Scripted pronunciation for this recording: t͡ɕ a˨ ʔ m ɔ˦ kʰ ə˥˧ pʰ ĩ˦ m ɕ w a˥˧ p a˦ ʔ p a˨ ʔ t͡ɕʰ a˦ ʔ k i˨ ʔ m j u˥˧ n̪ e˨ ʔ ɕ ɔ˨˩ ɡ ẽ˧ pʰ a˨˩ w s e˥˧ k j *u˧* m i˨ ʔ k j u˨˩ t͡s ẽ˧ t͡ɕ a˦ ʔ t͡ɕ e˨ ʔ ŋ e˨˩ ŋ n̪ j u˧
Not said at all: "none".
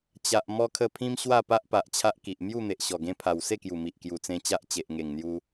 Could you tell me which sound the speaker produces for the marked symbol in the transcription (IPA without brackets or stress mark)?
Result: u˨˩